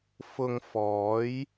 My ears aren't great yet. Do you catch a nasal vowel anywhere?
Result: no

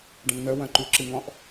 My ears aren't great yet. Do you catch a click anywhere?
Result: yes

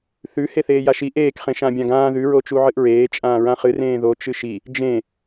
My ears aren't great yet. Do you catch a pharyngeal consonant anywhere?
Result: yes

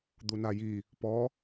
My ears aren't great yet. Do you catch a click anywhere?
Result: no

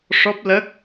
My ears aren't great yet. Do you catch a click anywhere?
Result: no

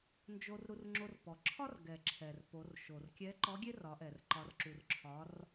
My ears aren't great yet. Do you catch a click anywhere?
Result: yes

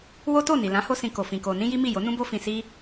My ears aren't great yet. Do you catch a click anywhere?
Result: no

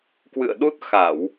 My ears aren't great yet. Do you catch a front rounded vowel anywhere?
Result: no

